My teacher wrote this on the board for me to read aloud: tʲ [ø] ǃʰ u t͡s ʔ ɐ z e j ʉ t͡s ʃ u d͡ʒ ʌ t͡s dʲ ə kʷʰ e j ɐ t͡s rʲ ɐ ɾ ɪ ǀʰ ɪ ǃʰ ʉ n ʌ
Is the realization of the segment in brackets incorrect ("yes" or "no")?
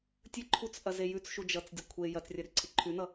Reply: yes